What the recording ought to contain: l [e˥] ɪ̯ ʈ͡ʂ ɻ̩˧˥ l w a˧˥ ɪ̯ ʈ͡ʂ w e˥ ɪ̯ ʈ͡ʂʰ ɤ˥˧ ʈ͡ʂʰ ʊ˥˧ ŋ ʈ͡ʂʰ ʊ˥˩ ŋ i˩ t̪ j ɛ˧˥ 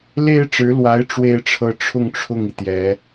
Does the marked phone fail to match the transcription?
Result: no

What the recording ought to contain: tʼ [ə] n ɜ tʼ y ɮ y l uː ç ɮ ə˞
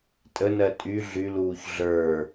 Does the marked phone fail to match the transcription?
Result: no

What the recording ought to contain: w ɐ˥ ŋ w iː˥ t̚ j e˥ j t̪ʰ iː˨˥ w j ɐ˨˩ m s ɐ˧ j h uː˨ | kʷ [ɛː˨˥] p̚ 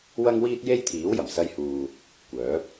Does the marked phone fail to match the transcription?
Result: yes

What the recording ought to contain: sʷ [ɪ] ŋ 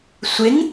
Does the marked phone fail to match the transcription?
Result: no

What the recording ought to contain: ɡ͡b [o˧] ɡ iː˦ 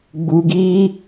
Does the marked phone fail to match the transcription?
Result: yes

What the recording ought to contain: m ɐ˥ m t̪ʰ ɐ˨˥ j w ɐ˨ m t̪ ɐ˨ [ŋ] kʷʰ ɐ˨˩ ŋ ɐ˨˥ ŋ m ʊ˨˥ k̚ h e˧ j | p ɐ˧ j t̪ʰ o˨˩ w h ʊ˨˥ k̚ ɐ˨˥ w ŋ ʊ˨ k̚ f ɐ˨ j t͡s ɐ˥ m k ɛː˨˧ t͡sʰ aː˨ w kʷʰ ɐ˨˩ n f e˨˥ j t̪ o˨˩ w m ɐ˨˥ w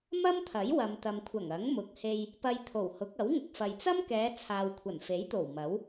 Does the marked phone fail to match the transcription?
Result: yes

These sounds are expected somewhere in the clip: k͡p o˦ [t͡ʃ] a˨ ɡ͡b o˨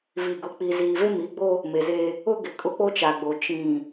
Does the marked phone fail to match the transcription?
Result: no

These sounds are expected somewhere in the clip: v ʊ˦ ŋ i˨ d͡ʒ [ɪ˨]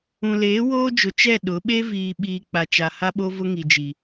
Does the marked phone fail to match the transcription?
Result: yes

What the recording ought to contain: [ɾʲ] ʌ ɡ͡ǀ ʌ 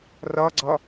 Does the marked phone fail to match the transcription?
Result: yes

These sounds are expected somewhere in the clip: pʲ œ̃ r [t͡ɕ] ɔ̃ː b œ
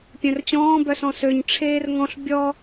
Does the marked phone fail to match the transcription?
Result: no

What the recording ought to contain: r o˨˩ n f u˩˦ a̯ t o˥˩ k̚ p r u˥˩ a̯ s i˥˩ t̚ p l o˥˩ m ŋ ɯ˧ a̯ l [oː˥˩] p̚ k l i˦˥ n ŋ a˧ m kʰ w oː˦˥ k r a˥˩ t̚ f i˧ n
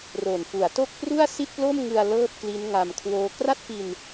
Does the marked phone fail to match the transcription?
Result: yes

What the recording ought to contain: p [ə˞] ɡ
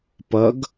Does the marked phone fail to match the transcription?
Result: yes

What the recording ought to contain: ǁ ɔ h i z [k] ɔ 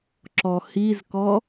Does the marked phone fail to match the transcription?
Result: no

